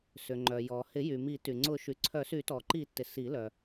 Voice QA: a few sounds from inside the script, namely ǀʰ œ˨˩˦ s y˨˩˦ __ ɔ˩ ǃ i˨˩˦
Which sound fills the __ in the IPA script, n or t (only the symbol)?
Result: t